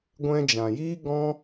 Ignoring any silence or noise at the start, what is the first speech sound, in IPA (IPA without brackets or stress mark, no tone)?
ɡʷ